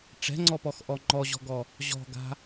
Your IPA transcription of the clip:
ʈ͡ʂɛ̤ŋ͡ǀɔpɔxʔɔ ŋ͡ǃɔʑɔ̤ɡɔ | ʑɔ̤ɡa̤

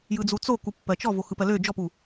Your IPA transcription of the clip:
jɯd͡zut͡so kupːɜt͡ʃɔ voxɯpɜlø d͡ʒɔpu

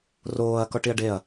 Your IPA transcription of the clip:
roːɐ̯ kɔʈiɐ̯ɖeɐ̯

